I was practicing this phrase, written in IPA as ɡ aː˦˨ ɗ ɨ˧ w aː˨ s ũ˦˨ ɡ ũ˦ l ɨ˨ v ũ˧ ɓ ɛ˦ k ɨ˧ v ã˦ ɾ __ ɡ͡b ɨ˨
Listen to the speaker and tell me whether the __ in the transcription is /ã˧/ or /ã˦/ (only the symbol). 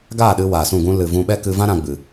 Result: ã˧